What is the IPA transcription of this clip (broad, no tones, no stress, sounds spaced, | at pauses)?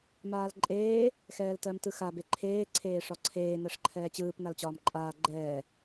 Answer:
m aː l ǃʼ eː | x ɛː l t ɜ m t ɯ x a b e ǃʰ eː ǀʰ eː ʂ ɒ ǀʰ eː n ɜ ʂ ǃʰ ɛː t͡ɕ ɯː p n a l t͡ɕ ɒː m ǃʼ aː ɡ͡ǃ ɛː